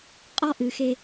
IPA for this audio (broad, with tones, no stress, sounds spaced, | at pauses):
qʼ ɔ˥ ʔ ɨ˩˧ x e˧